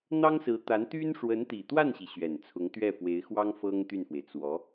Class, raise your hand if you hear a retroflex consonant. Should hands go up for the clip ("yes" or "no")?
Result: yes